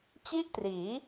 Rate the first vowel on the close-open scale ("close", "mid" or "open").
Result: close